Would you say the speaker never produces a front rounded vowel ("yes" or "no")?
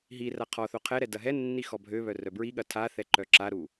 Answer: no